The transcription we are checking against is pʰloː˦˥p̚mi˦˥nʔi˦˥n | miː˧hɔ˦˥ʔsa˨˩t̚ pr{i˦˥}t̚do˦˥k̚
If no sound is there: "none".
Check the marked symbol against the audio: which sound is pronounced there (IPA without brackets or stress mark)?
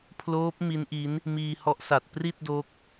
i˥˩